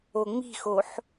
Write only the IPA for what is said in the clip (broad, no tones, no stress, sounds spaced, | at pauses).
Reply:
o ŋ͡m i̤ x o ħ